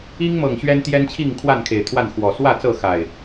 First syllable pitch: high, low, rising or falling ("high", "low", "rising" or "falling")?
high